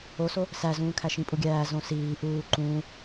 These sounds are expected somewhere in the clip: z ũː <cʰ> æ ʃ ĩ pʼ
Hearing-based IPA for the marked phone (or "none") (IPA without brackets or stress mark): kʰ